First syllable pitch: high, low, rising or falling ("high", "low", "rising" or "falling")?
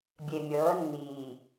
low